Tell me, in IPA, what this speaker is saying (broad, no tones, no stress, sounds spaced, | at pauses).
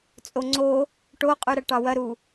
t͡sʼ o ŋ͡ǀ o | ʈ o qʼ ʉ ɾ ɐ ʈ ɑ w ɐ ɾ u